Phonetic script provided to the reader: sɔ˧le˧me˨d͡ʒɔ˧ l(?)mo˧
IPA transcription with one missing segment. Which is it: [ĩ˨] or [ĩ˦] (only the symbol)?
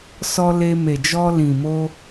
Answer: ĩ˨